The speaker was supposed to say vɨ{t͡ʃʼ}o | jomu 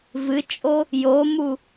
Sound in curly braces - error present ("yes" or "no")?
no